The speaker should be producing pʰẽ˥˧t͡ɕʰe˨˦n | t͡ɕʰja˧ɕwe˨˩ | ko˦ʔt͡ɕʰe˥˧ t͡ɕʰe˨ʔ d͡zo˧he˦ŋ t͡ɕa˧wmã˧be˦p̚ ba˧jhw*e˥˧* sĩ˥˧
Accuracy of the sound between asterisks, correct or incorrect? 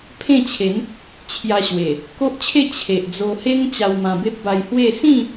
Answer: correct